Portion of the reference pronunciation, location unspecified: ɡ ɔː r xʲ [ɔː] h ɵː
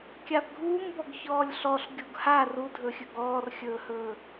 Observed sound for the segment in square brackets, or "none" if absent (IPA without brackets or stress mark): ɵː